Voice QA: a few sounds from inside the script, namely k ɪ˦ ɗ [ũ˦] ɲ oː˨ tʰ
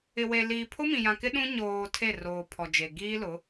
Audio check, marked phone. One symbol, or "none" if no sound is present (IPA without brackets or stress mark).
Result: ũ˦